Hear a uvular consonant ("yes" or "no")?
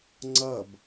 no